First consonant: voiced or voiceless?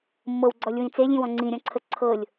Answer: voiced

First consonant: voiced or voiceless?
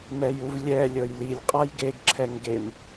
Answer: voiced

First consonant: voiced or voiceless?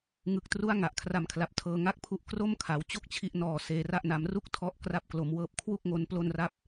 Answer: voiced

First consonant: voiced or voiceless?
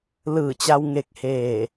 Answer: voiced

